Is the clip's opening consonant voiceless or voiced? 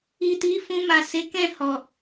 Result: voiceless